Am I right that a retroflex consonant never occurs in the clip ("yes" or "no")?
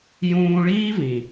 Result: no